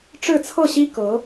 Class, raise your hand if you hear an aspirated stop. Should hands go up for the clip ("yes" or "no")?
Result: yes